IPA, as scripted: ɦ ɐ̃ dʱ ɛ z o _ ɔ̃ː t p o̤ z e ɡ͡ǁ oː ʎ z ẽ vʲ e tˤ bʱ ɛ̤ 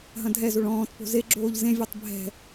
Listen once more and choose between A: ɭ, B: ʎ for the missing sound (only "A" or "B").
A